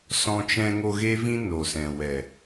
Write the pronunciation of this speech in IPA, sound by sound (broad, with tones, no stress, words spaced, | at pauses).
sɔ̃˧t͡ʃɛ̃˧ŋo˧ ɣe˦vĩ˦ no˨sɛ̃˨ wɛ˨